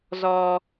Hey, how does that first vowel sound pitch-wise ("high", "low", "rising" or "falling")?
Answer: high